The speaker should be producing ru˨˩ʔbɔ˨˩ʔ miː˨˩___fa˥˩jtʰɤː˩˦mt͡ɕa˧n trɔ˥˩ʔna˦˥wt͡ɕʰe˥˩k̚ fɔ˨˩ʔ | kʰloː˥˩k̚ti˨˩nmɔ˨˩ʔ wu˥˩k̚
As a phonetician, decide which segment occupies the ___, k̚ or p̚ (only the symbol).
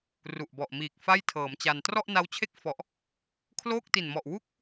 k̚